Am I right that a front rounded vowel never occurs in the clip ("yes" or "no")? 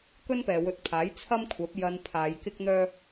no